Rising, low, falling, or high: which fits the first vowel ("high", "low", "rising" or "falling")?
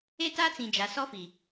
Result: high